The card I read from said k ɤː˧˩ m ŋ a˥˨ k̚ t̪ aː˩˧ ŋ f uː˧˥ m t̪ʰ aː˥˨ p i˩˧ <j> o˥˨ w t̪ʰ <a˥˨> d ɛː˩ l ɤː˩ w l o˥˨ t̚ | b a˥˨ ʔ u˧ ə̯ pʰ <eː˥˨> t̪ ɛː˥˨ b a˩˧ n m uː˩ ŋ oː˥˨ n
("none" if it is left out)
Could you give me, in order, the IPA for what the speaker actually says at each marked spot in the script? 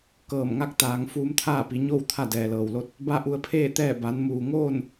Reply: ɲ, a˥˨, eː˥˨

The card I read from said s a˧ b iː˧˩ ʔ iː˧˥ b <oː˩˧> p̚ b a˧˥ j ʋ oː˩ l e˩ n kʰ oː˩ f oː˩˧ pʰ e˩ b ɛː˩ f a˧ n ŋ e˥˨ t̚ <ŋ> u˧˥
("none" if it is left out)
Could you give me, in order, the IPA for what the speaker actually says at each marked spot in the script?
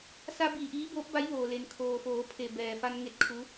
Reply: oː˧˥, kʰ

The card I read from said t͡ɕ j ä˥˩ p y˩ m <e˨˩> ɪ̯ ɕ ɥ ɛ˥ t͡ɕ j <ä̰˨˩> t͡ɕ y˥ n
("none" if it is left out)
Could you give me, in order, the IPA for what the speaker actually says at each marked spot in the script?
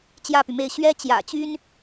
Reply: e˥˩, ä̰˨˩

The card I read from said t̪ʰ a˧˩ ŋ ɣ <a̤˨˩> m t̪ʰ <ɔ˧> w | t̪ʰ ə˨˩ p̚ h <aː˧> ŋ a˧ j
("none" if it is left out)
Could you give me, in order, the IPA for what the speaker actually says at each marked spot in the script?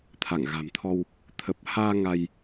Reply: a̤˨˩, ɔ˧, aː˧

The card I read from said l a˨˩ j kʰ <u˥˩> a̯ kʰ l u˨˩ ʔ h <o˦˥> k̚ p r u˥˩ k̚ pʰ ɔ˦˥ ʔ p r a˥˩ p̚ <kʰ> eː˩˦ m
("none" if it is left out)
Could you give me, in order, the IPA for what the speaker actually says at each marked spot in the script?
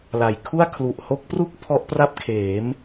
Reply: u˥˩, o˦˥, kʰ

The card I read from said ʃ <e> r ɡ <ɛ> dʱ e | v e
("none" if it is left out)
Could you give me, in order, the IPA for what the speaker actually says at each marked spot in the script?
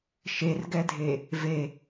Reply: e, ɛ

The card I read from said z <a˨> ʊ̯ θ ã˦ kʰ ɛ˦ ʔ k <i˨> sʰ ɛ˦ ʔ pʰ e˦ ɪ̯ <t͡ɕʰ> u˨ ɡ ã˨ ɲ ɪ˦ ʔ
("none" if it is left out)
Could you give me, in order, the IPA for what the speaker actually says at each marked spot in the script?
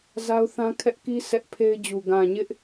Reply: a˦, i˦, d͡ʑ

